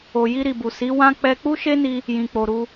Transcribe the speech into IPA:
o˨ j i˧ ɾ i˨ b u˨ s i˨˦ w ã˦ k͡p ɛ˧ k͡p u˦ ʃ e˦ n i˧ | j ĩ˨ k͡p o˨ ɾ u˧

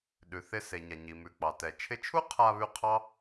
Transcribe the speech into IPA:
ɗ ʉ˩ θ ɪ˧ s e˩ ɲ a˩ ɲ i˩ m ʉ˩ k͡p ɑ˩ t ɛ˩ t͡ʃʰ ɪ˧ t͡ʃʰ u˥ qʰ a˧ β ʉ˧ qʰ ɑ˥

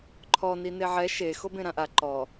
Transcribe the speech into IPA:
ǃʰ ɔ n i n e ʕ ɛ ʃ e x o b ẽ ɾ ã ʔ a ǃ ɔ

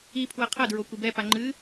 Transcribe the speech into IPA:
i pʰ w ɐ qʰ ɐ d ɹ o kʷ i b ɛ p a ŋ͡ǃ ɨ

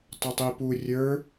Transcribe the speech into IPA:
tˤ ʊ tˤ i p u rʲ ə˞

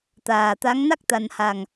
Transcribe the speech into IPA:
t̪ aː˨˩ t̪ a˧˥ ŋ n a˦˥ k̚ t̪ a˨˩ n h a˨˩ ŋ

